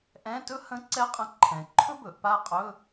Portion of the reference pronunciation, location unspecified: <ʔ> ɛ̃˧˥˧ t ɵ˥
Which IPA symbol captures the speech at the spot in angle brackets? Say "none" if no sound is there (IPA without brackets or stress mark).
ʔ